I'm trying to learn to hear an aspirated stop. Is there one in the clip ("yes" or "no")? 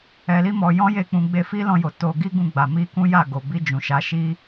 no